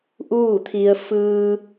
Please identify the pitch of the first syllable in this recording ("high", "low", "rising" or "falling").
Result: falling